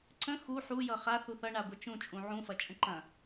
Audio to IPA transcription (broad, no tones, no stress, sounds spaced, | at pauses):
ǀ ə̃ x u ħ u j ʌ χ a θ u θ ʌ ɳ a ɡʷ ʌ t͡ʃ ũ t͡ʃʼ ũ ʕ ũ f ɐ t͡ʃʼ ə̃ ǃ ɐ̃